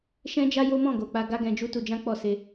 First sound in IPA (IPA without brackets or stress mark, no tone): ʃ